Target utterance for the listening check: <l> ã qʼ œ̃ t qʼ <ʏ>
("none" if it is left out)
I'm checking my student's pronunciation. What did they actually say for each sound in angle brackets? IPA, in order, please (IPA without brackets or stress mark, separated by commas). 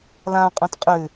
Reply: l, ʏ